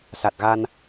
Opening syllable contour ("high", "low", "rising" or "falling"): low